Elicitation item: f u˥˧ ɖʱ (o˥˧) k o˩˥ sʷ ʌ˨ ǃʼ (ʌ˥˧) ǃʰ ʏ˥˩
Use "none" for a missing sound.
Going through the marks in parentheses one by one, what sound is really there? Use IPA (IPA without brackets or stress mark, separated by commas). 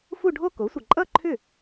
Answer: o˥˧, ʌ˥˧